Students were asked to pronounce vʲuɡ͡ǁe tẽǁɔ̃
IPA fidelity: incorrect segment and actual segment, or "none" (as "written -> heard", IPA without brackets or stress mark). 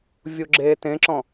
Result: none